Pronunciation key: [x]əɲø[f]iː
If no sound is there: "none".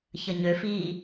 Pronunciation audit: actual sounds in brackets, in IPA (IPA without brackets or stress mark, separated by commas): ç, f